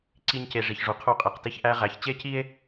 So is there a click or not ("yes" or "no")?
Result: yes